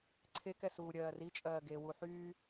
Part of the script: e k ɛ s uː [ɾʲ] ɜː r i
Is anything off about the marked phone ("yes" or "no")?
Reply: no